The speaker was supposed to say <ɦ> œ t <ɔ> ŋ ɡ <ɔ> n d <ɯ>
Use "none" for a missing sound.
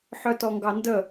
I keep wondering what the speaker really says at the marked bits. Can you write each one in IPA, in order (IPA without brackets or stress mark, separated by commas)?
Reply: ħ, ɔ, ɑ, ə